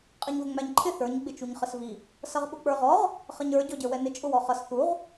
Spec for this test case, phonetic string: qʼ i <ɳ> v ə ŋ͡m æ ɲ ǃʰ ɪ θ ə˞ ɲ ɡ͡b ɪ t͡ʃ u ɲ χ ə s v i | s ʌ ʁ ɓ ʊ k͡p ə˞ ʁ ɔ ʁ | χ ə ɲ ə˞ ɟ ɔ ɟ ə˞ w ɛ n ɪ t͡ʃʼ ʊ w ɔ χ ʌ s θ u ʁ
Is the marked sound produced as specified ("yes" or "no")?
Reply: no